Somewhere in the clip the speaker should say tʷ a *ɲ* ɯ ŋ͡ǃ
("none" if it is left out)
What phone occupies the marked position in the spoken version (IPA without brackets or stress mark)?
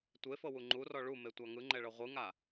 ŋ